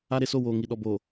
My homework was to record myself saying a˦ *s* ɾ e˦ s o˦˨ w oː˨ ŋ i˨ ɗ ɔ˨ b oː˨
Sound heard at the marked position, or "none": none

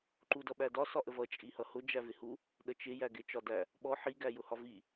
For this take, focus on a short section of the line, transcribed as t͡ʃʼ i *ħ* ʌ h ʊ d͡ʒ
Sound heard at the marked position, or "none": h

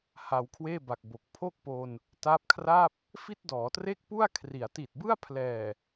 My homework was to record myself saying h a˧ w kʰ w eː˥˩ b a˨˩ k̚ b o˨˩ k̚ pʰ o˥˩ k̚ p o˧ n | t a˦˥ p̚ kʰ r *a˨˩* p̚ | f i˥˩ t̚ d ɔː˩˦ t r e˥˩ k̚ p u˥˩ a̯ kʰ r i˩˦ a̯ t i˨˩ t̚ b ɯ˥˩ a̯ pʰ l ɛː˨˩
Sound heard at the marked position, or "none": a˥˩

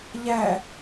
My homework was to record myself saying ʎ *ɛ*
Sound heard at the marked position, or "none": æ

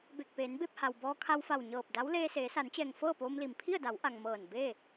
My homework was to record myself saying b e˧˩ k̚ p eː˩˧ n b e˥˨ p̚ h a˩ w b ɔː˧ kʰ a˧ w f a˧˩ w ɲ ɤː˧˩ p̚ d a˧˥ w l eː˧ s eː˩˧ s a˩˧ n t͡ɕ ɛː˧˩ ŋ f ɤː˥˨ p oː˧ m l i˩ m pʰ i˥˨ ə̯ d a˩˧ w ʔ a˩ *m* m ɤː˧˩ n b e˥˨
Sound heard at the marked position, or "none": ŋ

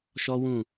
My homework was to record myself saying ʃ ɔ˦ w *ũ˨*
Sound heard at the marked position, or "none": ũ˦˨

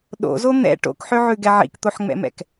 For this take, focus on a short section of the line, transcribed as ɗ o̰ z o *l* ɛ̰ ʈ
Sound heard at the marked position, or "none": n̪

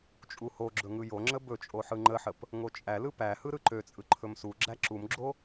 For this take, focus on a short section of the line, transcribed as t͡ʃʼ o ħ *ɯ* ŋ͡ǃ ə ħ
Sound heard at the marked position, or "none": ɯ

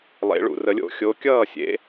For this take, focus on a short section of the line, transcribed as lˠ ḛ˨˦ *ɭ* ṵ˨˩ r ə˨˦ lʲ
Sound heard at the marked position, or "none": ɭ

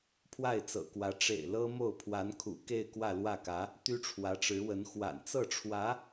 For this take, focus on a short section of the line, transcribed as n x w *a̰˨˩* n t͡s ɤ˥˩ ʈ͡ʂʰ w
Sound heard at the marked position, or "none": a̰˨˩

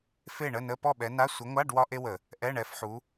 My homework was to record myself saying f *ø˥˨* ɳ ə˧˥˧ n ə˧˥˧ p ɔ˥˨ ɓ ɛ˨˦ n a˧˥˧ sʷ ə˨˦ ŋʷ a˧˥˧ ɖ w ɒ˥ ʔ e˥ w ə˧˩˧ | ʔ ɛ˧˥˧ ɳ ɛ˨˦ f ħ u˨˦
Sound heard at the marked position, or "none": e˥˨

